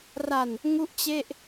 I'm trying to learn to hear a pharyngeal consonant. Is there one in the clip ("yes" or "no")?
no